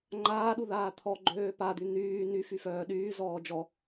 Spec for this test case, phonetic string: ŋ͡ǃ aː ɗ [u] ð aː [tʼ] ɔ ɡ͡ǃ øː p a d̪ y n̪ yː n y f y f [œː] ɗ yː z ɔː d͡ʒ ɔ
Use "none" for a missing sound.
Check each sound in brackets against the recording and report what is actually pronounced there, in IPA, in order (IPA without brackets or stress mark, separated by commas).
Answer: u, t̪ʰ, œː